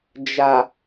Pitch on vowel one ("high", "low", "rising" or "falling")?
low